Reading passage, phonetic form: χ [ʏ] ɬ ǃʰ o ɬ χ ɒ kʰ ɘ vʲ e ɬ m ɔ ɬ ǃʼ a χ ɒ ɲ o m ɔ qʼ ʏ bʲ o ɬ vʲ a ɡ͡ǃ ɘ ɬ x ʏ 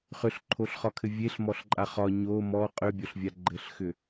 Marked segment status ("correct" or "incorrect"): correct